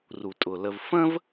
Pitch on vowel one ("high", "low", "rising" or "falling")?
low